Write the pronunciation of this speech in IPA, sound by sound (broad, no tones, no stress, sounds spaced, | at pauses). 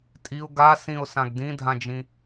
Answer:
tʼ i ʊ̯ ɡ a s ĩ ʊ̯ s ã ɡ d ĩ dʱ ã d͡ʒ ĩ